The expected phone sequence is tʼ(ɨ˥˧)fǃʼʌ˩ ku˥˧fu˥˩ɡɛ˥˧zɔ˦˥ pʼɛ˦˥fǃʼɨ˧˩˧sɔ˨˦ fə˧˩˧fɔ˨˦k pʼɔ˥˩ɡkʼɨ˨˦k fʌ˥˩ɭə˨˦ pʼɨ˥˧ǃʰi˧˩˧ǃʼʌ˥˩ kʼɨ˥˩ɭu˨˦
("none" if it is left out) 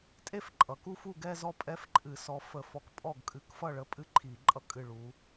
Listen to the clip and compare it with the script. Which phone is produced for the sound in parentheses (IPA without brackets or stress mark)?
e˥˧